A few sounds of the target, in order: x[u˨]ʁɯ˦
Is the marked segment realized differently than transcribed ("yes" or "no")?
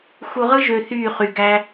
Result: no